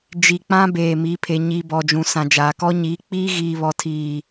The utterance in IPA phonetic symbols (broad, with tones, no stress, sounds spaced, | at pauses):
d͡ʒ i˨ k͡p ã˦ b eː˨ m i˨˦ pʰ e˨ ɲ i˨ b ɔ˨ d͡ʒ ũ˨ s ã˨ d͡ʒ aː˨ k ɔ˦ ɲ iː˨˦ k͡p iː˦ ɣ iː˨ β ɔ˨ tʰ iː˨